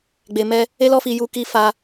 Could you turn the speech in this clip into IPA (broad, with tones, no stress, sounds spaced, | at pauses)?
ɡ͡b e˨ m ɛ˧ | e˦ l ɔ˦ f i˧ j u˧ k i˧ f a˧